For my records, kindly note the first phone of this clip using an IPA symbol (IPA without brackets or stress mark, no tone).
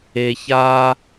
e